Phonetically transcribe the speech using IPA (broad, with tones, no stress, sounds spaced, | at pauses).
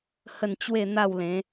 h ə˥˧ n t͡ɕ w e˥˧ n̪ a˥˧ w l ẽ˨˦